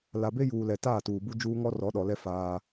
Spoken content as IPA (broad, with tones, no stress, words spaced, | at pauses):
la˨be˦juː˨lɛ˨ taː˦˨tuː˨bu˦ d͡ʒuː˦ ŋɔ˦rɔ˨˦ɗɔ˨lɛ˦ faː˦